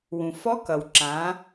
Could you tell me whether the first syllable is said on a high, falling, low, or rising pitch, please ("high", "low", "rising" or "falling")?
low